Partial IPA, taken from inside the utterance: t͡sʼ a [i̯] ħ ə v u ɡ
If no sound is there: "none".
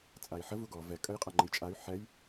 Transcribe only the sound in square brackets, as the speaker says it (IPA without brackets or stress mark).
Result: i̯